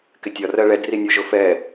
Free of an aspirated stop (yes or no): yes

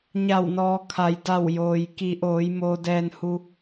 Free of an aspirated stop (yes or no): no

